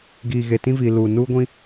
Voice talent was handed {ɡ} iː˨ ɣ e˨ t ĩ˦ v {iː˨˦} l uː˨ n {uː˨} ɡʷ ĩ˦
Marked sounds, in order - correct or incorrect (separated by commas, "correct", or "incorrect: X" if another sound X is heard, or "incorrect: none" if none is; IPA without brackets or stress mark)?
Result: correct, incorrect: iː˨, incorrect: uː˦